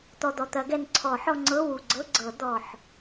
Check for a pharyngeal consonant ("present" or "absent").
present